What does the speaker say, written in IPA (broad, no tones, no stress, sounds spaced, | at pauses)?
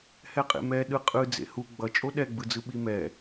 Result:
h ɛ qʼ ḛ m ɛ ɗ ɯ qʼ ɯ d͡z ḛ h u ɡ͡b ʌ t͡ʃʼ o ɗ ɛ ɡ͡b ɯ d͡z ɯ ɓ i m ɛ